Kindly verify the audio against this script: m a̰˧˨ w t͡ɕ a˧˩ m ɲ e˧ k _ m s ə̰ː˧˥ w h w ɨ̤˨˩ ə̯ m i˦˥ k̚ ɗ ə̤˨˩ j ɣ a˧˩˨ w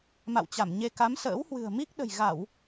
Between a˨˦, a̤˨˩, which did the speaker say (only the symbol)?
a˨˦